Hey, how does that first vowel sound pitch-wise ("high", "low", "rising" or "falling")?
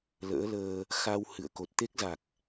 rising